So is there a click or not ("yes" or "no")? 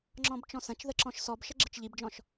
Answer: yes